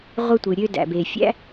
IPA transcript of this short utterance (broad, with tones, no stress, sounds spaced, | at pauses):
ʁʷ ɯ˥ tʷ ɯ˩ ɾʲ ø˥ d æ̰˩ b e˩ fʲ æ̰˥